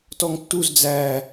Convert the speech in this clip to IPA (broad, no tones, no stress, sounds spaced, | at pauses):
t ɔ ŋ tː u z d͡z æ